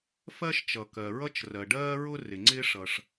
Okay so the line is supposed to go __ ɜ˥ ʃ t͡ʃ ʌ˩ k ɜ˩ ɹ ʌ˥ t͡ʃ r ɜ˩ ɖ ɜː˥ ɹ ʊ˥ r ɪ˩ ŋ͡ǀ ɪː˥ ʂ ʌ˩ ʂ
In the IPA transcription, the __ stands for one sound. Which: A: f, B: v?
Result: A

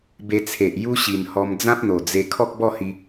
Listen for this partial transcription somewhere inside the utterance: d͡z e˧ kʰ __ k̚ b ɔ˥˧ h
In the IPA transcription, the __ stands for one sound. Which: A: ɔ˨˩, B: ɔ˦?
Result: B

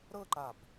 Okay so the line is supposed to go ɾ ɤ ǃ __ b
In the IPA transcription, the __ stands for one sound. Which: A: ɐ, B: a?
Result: B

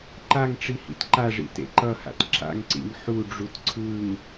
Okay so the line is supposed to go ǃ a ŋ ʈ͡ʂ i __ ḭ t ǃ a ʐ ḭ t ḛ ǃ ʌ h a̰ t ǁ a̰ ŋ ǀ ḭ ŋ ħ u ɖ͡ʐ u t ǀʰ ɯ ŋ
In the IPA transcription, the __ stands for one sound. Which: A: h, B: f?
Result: A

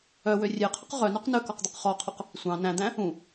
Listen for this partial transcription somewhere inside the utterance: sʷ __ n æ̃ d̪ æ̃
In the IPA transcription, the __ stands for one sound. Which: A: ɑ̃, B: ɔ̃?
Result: A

